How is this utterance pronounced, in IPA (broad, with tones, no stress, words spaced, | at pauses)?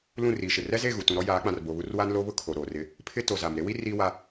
lũ˦˨riː˨ʃɪ˨ rɛ˦ze˦˨ɣu˨ tũ˨ɾɔ˦ jaː˨˦k͡pã˨r bo˨βu˦r wa˦nlo˦βʊ˦ kʰo˨ɾoː˨rɪ˦ | pʰɪ˦ to˨za˨m ɾe˦wi˦ riː˦wa˦